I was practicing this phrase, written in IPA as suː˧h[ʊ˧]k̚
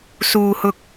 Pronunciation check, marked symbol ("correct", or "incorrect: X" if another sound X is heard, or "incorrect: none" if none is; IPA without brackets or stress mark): correct